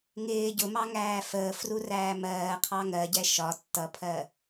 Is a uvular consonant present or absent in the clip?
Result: present